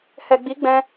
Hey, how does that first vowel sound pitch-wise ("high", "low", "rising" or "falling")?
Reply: low